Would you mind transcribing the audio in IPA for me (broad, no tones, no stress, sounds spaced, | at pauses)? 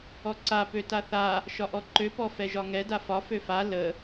ɔ ǀ a p ø t a θ a | ʃ ɒ ʔ ɔ ǃ ø p ɔ f ɛ ʒ ɒ ŋ ɛ d a f ɒ f ø f a l ə